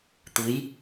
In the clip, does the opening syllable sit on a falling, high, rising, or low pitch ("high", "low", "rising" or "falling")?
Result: rising